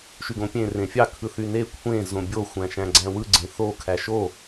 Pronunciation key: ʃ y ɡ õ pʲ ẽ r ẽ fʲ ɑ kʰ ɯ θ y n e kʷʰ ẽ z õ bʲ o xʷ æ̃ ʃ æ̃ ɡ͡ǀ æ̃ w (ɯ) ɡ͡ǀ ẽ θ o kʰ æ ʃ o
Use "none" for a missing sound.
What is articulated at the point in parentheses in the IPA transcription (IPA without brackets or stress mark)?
ɯ